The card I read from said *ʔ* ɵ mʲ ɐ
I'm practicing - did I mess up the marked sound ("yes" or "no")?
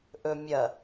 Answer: no